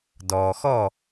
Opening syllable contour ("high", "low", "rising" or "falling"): low